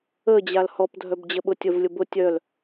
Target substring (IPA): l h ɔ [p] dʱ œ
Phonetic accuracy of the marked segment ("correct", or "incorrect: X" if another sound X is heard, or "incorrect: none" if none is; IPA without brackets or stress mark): correct